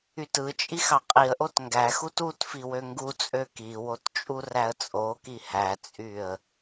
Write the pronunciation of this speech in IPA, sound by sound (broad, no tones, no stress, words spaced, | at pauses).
ytɯt͡ʃʼix ɑqʼiə̯ʔot ŋɡæxut utfi wøŋɡut͡sʼø kiwot t͡ʃʼuræə̯t͡sʼoki hæt͡sʼyə̯